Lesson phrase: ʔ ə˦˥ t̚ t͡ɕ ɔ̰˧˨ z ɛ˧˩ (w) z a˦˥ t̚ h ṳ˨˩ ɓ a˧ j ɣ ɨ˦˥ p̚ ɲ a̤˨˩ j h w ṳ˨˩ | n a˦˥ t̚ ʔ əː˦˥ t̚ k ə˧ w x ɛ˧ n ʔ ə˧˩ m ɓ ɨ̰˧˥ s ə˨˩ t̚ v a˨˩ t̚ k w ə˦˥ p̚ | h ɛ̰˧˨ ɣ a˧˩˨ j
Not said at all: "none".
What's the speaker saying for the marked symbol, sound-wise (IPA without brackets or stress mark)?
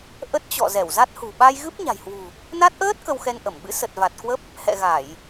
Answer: w